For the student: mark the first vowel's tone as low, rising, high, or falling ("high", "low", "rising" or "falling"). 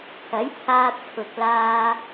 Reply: rising